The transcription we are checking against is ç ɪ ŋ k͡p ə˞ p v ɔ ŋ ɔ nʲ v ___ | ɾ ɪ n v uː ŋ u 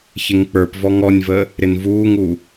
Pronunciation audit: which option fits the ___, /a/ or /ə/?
ə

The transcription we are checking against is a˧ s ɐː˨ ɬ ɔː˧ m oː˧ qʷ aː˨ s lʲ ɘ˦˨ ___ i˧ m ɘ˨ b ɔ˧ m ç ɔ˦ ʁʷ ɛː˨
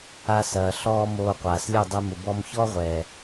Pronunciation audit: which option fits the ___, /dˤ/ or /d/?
dˤ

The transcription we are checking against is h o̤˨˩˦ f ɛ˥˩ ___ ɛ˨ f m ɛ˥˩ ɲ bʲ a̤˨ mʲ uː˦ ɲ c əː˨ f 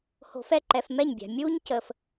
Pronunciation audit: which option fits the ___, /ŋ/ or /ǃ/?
ǃ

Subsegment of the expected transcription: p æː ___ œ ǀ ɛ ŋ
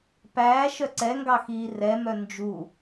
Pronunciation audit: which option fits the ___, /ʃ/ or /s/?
ʃ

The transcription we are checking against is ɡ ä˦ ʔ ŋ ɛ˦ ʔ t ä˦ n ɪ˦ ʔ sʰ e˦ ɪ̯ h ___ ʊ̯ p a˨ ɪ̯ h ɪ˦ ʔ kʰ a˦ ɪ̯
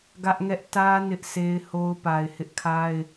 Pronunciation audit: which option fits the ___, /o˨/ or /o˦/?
o˦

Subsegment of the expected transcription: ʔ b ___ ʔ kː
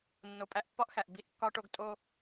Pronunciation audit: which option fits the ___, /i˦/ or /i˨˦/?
i˦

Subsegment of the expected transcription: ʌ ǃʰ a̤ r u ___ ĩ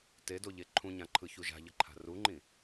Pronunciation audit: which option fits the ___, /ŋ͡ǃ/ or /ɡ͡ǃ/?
ŋ͡ǃ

